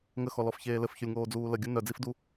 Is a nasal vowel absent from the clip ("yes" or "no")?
yes